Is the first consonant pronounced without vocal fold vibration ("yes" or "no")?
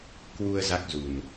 yes